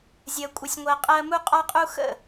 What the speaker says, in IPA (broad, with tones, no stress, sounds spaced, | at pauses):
zʲ ɜ˧ kʷʼ ɪ˧ sʲ ŋʷ ɜ˧ qʼ ɜ˦ m u˦ qʼ ɒ˦ qʼ u˦ x ə̰˦˨